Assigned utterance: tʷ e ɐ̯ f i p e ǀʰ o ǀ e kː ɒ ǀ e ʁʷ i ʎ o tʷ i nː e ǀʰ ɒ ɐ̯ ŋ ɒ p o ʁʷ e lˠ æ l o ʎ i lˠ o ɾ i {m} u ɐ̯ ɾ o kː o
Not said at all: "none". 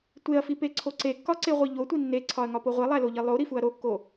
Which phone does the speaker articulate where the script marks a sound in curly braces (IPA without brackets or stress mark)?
f